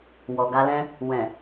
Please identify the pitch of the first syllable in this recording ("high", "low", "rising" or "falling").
low